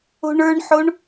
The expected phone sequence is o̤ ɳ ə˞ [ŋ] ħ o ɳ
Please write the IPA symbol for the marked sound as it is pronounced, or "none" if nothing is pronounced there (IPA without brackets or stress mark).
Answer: ɳ